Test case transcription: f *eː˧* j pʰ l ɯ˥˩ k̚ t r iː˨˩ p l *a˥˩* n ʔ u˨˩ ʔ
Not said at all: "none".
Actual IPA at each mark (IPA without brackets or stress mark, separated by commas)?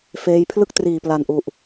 eː˦˥, a˨˩